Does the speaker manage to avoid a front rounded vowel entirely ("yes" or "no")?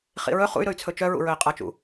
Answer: no